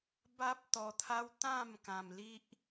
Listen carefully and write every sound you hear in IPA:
ba˦p̚t̪ɔ˧t̪ʰa˦w t̪ã˥˧m kã˧mli˦ʔ

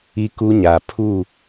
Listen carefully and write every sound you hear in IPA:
i˦ku˦ɲa˨ pʰu˦˨

